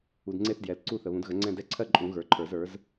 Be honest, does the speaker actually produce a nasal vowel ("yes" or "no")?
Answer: yes